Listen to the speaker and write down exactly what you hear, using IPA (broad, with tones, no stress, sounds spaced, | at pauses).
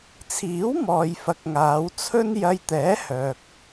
t͡sʰ iː˨˥ w m ɔː˨ j f ɐ˨˥ k̚ ŋ aː˨˧ w t͡sʰ ɵ˥ n j ɐ˧ j t̪ ɛː˨˥ h œː˨ k̚